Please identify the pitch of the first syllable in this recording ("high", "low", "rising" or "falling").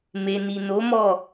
low